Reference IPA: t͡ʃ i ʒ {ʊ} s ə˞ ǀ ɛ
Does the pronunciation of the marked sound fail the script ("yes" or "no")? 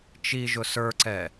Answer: no